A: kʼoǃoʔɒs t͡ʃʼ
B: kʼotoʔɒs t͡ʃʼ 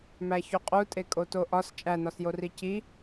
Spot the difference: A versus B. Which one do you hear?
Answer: B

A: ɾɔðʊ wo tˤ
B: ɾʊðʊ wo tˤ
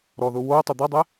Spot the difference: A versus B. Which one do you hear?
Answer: A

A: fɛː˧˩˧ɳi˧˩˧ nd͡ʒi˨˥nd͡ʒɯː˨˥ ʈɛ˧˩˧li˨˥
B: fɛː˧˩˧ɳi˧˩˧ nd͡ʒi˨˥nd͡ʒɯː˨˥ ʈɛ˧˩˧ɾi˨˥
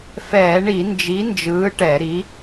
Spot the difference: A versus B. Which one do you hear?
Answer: B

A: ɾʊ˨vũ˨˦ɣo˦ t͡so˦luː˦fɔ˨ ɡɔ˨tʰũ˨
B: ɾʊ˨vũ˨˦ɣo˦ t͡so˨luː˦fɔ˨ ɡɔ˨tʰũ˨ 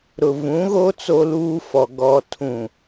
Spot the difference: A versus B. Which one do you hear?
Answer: A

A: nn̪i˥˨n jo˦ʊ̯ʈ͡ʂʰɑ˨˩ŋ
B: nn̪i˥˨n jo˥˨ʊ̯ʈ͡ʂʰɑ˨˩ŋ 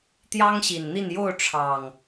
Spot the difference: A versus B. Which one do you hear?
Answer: B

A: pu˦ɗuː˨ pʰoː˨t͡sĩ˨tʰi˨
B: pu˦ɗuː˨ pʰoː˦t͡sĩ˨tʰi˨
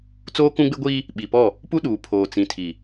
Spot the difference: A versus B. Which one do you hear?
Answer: A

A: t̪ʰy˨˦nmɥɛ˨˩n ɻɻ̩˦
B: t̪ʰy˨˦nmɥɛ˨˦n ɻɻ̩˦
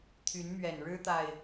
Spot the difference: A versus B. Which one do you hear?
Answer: A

